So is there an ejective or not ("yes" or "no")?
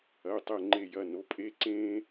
yes